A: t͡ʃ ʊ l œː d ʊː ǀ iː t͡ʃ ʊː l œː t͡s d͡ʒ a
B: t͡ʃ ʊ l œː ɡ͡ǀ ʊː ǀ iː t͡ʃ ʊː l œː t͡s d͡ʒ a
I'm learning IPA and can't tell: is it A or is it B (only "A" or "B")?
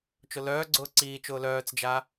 B